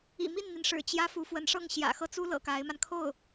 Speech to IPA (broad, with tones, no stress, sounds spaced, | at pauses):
ḭ˨˩ m i˥˩ n n̪ i˩ n ʂ ɻ̩˨˩ t͡ɕ j ä˥ f u˧˥ f w ə˧˥ n ʂ ɤ˥˩ ŋ ɕ j ä̰˨˩ x ɤ˥˩ t͡s u˥ l ɤ̰˨˩ k a˧˥ ɪ̯ m a˧ n kʰ o˥˩ ʊ̯